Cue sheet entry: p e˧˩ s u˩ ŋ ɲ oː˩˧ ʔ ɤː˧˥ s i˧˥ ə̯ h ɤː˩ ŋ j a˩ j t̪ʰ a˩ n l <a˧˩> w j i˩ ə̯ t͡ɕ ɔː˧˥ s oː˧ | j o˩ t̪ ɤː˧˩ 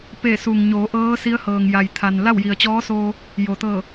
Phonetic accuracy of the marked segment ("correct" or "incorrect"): incorrect